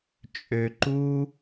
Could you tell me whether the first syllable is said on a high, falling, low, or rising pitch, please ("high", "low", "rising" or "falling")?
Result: low